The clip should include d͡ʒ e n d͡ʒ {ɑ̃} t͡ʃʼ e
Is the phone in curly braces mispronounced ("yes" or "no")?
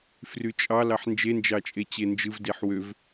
yes